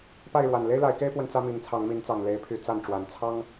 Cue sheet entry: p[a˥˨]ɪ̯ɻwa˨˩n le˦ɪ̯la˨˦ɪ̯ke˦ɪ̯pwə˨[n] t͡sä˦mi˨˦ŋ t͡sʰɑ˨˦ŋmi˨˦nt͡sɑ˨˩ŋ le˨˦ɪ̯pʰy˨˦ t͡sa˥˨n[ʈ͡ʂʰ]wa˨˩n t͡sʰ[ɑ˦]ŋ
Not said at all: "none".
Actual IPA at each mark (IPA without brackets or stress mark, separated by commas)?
a˥˨, n, ʈ͡ʂ, ɑ˦